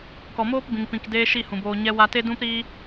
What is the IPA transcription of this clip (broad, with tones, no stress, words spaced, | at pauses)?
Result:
kɔ˨moː˦pbĩ˨ŋpĩ˨k deː˦ʃi˦˨hũ˨boː˧ ɲɛ˧wa˧te˦ dũ˦p ɾiː˧